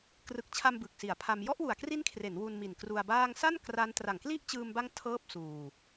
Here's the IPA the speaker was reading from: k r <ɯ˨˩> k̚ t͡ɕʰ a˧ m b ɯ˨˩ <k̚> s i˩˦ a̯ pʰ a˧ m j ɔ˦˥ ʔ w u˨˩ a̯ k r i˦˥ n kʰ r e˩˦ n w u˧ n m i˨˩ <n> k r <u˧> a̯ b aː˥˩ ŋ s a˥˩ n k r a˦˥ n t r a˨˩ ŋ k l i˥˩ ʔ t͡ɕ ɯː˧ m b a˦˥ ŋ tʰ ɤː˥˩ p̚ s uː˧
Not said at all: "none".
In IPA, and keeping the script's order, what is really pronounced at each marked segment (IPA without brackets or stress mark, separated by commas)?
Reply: ɯ˨˩, k̚, n, u˧